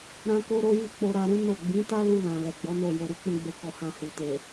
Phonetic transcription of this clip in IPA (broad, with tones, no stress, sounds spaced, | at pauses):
ɾ ã˦ k o˦ ɾ o˦ j i˦˨ k͡p o˧ ɾ a˧ ɾ ũ˦ n o˦˨ ɡ͡b ĩ˨˦ t a˦ l u˧ l ã˨ l ɛ˨ ɡ͡b ɔ˨˦ n o˦˨ j o˧ ɾ u˦ k͡p ũ˧ ɡ͡b e˧ k ɔ˧ h ã˧ h u˨ t e˨